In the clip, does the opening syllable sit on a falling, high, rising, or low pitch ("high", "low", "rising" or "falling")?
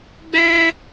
high